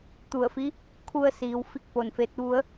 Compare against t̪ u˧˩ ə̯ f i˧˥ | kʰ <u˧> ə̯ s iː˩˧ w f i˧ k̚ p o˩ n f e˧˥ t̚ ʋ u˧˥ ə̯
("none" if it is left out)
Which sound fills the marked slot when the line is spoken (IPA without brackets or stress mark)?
u˧